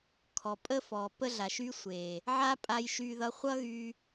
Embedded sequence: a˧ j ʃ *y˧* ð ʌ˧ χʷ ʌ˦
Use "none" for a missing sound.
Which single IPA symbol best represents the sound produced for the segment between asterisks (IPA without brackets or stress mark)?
y˧